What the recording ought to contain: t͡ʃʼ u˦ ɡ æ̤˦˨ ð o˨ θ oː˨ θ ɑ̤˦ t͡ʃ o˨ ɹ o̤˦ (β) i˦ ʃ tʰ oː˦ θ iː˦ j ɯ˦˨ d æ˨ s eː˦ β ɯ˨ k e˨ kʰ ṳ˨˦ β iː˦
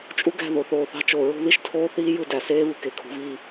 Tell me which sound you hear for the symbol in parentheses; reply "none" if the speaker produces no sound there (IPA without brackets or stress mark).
ð